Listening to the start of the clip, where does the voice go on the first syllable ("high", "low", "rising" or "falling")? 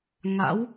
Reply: rising